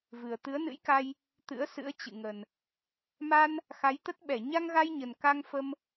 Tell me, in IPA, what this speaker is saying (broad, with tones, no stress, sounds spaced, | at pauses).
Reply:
v ɨ˨˩ ə̯ t̪ ɨ˨˦ ə̯ n ɨ̰˧˥ j k a˧ j | t̪ ɨ̰˧˥ ə̯ s ɨ̰˧˥ ə̯ t͡ɕ ɨ̰˧˨ ŋ ə˨˩ n | m a˧ n | x a˨˦ j t̪ ə˦˥ t̚ ɓ ɛ˧˩ ɲ a˧ ŋ ɣ a˧ j ɲ ə˨˩ n k a˧ ŋ f ə˧ m